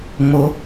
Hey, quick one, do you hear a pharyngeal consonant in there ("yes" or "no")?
no